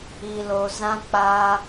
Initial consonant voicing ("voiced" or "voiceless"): voiced